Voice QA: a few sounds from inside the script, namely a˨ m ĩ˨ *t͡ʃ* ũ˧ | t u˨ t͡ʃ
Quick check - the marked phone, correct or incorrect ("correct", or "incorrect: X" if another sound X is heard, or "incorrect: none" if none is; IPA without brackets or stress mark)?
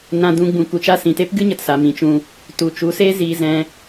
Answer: correct